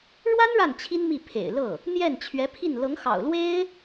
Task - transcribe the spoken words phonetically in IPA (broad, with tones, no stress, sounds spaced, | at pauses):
ɻ w a˥ n ɻ a˥˩ n t͡ɕʰ i˥ n m i˥˩ pʰ ḛ˨˩ ɪ̯ l ɤ˥˩ | n̪ j ɛ˥˩ n t͡ɕʰ ɥ ɛ˧˥ pʰ i˥˩ n l ɤ˧˥ ŋ x ɑ̰˨˩ ʊ̯ l w e˥ ɪ̯